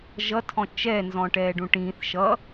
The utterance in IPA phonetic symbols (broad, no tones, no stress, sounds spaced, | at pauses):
ʒ ʌ tʰ ɔ̃ t͡ʃ ɛ n z ɔ̃ ʈ ɛː ɖ ũ ʈ ĩː θ ʃ ʌ